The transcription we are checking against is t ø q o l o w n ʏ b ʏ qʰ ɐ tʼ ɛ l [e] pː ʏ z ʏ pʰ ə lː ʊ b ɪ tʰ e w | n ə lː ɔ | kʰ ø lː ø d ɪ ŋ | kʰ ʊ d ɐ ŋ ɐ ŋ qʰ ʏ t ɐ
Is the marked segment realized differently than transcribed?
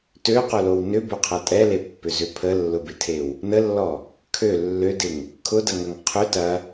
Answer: no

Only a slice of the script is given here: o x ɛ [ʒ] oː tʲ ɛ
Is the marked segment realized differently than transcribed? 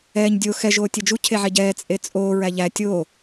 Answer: no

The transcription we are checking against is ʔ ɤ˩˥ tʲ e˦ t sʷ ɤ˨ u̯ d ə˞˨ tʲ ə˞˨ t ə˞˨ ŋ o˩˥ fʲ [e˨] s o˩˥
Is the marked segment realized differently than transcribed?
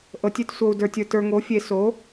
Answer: yes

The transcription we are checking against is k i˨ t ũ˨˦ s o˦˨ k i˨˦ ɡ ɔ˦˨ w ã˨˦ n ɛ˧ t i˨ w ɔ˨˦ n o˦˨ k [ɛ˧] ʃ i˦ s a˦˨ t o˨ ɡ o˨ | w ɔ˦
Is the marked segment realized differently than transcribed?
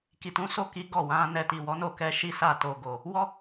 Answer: no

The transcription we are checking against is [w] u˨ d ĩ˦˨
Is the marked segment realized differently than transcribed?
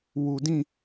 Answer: no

